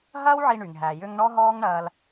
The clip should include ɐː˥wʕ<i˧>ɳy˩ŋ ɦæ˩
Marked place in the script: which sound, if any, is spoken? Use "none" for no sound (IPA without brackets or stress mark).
i˧